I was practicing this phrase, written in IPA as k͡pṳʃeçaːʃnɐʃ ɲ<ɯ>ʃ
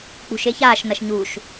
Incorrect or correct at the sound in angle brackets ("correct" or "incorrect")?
incorrect